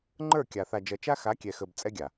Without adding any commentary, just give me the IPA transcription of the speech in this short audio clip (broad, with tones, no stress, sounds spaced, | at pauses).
ŋ͡ǃ ə˞˦˨ kʲ a˨ θ a˨ d͡ʒ ʌ˨ t͡ʃ a˦ x a˨˦ kʲ ɛ˨ x ə˨ b t͡sʼ ɛ˦ ɡʲ a˨